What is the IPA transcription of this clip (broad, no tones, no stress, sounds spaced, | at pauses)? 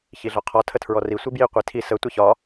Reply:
ç i ɮ ɒ qʰ ɒ tʰ ə tʰ ɹ ɔ r i sʷ i b j i qʷ i tʰ i s ə tʷ i ç ɒ